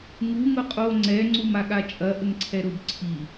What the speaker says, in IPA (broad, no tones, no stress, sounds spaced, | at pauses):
ŋ u ŋ ʊ qʼ o ŋ͡ǀ ɛ ŋ͡ǀ u m a ɠ a t͡ʃʼ ɐ ʔ ə ŋ ǀʰ ɛ ɾ ʊ b ǀʰ i